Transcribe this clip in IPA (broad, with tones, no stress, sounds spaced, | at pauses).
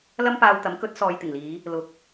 l ɐ˥ m p aː˧ w t̪ ɐ˨˥ m k ɵ˨˥ t̚ s ɔː˨ j t̪ ɪ˨˩ ŋ l iː˨˧ | l ʊ˨˥ k̚